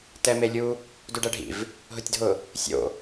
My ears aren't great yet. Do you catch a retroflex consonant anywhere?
yes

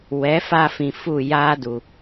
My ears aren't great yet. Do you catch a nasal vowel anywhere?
yes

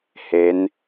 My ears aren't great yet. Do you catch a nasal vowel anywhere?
no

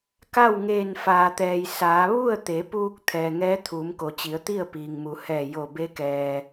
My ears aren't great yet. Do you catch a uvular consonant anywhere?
no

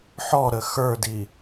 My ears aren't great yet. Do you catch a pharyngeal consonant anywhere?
yes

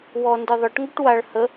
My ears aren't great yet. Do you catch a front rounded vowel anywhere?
yes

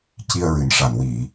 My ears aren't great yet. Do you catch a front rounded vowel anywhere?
no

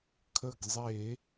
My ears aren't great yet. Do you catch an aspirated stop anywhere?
yes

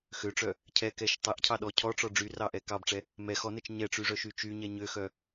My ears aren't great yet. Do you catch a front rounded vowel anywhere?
yes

